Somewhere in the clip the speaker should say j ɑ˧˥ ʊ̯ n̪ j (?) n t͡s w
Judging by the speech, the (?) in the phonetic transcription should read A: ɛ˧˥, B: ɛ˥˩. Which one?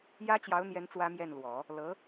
A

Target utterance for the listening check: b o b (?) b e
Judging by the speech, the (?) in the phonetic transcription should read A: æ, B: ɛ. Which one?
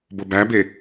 A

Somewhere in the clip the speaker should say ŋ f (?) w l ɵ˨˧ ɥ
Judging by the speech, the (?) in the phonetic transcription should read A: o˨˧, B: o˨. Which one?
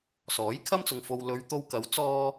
B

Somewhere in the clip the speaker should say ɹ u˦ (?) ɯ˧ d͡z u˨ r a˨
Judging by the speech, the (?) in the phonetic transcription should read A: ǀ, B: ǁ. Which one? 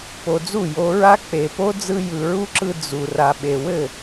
B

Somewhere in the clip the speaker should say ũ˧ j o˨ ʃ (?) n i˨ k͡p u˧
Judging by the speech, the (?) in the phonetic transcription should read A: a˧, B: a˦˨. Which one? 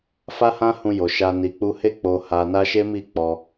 A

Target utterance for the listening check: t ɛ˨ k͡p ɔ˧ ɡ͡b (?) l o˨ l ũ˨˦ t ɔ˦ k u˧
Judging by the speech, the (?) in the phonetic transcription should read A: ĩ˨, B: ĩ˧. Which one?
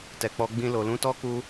B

